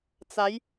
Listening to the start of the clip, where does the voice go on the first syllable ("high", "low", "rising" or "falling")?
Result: rising